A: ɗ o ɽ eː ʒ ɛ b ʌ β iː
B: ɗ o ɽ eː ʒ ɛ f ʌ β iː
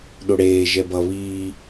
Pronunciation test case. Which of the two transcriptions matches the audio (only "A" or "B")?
A